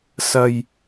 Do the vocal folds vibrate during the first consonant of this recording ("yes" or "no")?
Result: no